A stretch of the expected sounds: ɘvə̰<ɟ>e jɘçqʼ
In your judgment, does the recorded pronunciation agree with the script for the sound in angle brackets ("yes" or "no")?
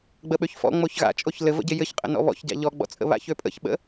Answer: yes